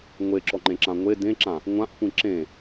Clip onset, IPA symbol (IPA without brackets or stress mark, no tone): ŋʷ